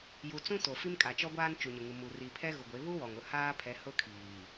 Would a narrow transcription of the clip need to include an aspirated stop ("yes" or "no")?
yes